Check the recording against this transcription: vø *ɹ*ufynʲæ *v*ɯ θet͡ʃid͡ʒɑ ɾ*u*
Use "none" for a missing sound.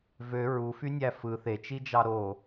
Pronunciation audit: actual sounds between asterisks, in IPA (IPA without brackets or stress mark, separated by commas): ɹ, f, o